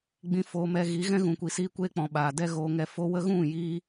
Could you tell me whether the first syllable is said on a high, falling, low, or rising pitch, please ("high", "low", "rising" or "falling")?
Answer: high